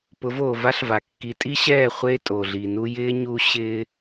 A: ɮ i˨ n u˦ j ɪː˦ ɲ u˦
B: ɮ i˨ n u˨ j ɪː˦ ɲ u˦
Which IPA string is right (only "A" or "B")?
A